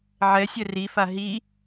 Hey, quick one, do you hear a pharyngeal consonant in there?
yes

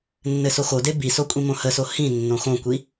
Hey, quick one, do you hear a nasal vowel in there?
yes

